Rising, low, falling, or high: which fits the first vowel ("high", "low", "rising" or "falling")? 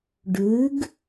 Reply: rising